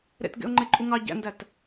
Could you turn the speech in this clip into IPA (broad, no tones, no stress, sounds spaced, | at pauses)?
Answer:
ɾ ḛ t ɡ ḛ ʊ̯ ŋ͡ǃ e ǃʼ u ŋ ɑ ɟ æ̰ n d æ t